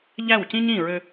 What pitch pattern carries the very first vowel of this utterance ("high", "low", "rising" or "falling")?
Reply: falling